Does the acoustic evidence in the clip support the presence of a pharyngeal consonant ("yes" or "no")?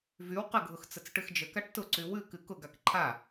no